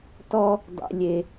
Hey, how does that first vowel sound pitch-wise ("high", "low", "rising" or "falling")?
high